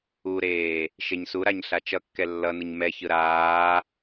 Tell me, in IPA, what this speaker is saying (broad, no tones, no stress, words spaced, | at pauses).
uɾeː | ʃeɲsuɾaɲ ɬat͡ʃʌkːɛ lːʌnɯɲ mɛçɯ ɾaː